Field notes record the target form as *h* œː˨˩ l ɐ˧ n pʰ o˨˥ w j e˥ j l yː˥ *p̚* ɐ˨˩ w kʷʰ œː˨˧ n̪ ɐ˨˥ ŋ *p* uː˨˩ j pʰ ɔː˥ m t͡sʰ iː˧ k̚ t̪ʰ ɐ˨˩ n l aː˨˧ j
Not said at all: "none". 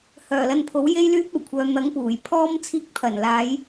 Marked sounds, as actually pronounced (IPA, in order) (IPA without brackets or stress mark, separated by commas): h, p̚, p